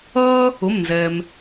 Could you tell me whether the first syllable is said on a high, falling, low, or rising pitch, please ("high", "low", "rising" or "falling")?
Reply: high